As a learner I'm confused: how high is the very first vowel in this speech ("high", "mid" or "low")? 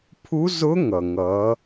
high